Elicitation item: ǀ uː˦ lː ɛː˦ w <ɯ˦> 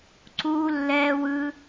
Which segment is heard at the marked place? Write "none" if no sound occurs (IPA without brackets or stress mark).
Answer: ɯ˦